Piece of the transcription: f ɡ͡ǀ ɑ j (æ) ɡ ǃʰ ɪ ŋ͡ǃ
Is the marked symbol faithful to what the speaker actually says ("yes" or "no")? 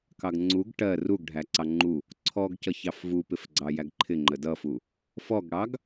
yes